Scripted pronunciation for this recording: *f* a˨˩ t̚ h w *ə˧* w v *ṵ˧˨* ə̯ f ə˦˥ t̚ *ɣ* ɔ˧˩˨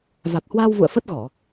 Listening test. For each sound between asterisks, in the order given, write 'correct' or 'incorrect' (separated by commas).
incorrect, incorrect, correct, correct